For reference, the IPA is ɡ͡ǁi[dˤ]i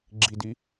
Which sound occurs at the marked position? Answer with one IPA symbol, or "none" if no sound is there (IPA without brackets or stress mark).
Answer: d